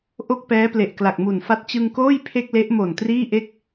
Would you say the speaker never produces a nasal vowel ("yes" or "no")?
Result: yes